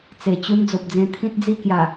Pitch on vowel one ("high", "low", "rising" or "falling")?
low